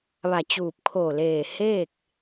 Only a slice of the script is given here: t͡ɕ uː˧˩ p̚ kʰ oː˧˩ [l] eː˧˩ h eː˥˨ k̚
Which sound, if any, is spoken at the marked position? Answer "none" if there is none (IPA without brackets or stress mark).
l